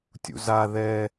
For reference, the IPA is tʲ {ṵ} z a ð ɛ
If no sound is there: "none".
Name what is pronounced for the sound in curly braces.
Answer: ṵ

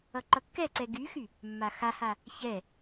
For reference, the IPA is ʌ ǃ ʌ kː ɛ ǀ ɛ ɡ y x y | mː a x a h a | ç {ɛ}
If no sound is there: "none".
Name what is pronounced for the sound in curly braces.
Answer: ɛ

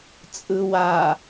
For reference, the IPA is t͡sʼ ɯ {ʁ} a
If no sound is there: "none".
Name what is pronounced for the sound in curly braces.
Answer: w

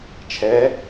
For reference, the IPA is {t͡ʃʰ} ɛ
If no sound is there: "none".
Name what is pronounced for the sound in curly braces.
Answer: t͡ʃʰ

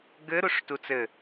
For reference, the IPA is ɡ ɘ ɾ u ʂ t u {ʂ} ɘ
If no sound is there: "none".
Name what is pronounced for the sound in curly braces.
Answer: t͡s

